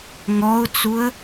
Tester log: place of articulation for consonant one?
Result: velar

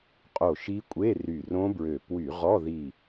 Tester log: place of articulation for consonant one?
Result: uvular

